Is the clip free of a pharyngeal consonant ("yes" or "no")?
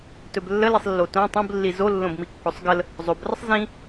yes